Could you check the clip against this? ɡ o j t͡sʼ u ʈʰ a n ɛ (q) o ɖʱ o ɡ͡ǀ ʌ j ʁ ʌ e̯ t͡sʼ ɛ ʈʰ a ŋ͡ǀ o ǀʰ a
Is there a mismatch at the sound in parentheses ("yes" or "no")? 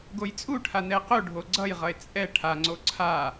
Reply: no